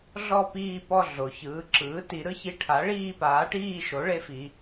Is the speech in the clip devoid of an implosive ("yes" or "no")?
yes